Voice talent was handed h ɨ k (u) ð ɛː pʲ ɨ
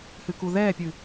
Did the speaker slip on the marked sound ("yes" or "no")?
no